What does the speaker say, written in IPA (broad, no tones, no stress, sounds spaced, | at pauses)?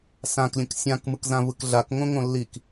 s ã k lʲ ə̃ k sʲ ã k m ɯ k z ã v ɯ k ɮ a k ŋ õ ŋ õ lː i k